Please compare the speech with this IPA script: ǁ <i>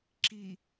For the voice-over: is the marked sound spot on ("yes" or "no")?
yes